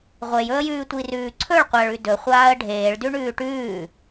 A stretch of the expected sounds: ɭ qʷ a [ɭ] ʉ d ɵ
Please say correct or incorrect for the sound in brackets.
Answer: correct